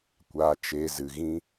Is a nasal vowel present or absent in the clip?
present